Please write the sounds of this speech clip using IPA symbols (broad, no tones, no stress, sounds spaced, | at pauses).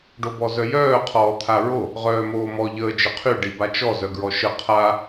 ɖ o b ɔ z œ j œː qʰ ɔː t̪ʰ a ɹ o | ʁ œː m oː m ɔ ʎ əː d͡ʒ ə qʰ y ɖ i b a t͡ʃ ɔ z œ ɡ ɹ ɔ ʃ ə qʰ a